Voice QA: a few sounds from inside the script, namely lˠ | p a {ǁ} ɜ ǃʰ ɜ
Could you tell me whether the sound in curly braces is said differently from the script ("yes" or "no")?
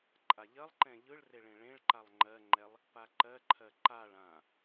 yes